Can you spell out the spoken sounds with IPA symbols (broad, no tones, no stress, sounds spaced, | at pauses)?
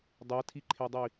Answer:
dˤ ɛ tʰ i ǃʰ e dˤ i